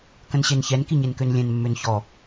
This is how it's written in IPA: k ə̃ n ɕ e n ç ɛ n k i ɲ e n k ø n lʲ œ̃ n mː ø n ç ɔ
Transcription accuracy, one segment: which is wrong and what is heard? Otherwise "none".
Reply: œ̃ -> ɛ̃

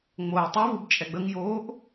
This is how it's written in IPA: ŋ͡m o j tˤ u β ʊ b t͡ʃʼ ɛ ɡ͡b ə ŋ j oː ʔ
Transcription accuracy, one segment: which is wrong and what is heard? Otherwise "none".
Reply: ʊ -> u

